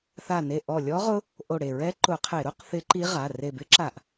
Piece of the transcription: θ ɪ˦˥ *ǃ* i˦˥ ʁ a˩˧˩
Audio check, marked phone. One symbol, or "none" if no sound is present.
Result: ǃ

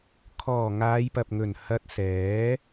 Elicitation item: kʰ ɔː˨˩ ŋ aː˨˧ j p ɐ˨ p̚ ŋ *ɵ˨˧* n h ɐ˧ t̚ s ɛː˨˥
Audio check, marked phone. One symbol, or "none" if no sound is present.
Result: ɵ˨˩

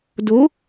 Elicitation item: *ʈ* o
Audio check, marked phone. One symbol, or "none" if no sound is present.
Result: d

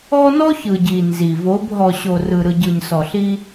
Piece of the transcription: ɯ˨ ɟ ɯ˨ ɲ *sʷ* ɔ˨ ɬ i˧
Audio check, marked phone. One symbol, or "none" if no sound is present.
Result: s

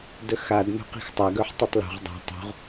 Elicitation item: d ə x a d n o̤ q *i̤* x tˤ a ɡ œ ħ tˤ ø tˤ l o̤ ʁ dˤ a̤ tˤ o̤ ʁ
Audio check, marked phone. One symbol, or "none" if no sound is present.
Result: i̤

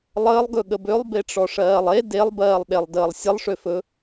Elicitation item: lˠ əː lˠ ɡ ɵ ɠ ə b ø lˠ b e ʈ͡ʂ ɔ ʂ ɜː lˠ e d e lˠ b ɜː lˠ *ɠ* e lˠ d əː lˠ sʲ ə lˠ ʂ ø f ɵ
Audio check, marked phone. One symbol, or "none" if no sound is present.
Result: ɗ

